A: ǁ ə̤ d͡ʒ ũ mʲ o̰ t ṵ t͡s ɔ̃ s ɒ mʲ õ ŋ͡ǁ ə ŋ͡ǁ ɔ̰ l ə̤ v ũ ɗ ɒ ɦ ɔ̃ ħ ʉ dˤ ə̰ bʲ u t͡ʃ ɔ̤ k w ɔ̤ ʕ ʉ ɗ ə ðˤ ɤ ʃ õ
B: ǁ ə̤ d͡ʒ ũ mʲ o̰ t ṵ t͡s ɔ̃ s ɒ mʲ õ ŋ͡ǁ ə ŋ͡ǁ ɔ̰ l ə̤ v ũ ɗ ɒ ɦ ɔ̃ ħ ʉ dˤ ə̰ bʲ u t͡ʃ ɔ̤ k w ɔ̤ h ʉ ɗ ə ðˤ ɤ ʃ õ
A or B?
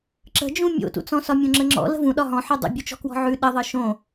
A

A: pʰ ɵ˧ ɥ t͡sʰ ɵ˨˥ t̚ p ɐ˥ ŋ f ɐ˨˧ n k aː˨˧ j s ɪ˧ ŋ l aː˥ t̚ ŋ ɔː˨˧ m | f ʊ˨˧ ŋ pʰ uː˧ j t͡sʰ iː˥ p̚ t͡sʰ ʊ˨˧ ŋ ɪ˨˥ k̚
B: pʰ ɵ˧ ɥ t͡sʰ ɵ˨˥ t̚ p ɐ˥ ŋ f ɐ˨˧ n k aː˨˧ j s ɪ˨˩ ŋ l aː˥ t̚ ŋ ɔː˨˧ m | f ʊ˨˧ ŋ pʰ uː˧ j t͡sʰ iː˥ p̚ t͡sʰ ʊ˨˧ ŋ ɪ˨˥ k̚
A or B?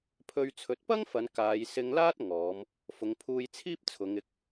A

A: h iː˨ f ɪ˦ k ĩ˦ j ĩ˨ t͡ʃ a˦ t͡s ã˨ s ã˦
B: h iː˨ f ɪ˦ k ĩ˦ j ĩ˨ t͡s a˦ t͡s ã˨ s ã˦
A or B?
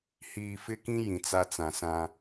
B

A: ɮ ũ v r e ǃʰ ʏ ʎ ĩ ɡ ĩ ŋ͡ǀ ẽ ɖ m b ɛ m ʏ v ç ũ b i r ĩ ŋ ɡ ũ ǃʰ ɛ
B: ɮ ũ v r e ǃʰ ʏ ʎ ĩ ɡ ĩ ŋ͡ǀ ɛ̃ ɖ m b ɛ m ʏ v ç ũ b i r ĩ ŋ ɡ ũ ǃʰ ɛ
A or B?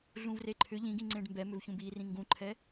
A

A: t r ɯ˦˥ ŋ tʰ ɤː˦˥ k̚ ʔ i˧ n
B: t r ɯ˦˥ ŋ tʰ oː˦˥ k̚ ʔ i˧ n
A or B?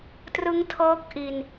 A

